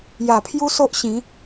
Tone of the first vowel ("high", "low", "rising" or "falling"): low